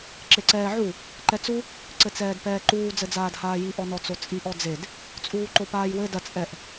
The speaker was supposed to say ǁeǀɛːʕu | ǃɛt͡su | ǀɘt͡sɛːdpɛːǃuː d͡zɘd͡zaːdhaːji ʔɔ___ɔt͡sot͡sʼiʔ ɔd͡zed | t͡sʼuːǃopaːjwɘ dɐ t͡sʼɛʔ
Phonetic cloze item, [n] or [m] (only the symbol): n